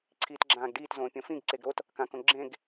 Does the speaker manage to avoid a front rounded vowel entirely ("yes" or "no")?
yes